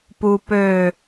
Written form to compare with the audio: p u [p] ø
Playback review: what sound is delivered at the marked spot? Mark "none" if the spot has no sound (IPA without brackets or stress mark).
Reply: p